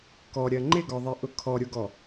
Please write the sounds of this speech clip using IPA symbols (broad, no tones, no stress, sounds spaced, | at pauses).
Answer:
k ɔ ɾʲ ɜ ŋ͡ǃ ɪ ɡ ɔ ðˤ i ʔ ʊ kʰ ɔ ɾʲ ʊ ɡ ɔ